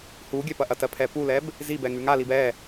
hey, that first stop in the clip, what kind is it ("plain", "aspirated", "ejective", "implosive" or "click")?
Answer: plain